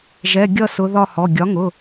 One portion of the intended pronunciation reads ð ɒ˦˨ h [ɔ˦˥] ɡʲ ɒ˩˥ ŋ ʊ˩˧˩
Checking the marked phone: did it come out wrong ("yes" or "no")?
yes